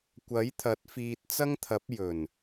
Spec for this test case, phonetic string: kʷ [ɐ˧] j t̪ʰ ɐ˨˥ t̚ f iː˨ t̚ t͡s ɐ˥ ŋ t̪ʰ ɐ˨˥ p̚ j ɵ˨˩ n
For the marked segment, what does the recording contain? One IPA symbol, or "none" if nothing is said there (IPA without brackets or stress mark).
ɐ˨˥